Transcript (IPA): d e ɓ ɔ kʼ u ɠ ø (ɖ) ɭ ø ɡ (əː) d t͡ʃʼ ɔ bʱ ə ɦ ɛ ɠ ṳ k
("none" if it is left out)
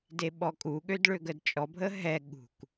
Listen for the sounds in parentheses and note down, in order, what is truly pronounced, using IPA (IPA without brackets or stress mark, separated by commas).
d, ə